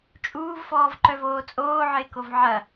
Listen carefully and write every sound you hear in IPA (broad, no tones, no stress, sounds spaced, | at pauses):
t͡ʃʼ uː v f ɔː v ǃ œ v oː t͡sʼ oː ʕ ɪː k o v ʕ ɐ